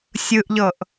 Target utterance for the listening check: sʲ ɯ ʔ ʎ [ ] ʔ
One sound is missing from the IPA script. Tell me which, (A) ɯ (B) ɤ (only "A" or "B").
B